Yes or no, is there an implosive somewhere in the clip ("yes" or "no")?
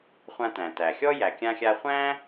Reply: no